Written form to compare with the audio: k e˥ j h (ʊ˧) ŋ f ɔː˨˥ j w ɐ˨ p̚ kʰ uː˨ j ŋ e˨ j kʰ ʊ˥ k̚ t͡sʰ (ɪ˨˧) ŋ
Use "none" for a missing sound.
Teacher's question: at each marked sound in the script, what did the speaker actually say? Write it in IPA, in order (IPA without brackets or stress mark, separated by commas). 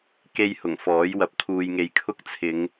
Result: ʊ˨˩, ɪ˨˧